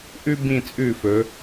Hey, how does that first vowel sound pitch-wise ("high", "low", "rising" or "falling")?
high